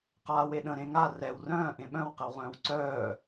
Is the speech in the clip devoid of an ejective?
yes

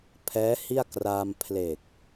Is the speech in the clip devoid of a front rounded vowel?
yes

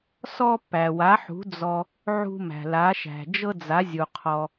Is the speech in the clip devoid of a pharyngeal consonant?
no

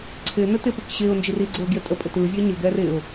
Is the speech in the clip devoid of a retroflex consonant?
yes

